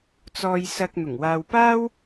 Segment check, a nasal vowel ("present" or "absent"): absent